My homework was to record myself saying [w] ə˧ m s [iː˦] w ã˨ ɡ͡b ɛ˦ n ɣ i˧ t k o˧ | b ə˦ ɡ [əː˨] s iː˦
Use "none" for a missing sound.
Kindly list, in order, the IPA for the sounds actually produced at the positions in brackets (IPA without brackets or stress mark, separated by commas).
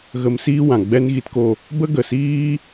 ɣ, iː˦, ə˨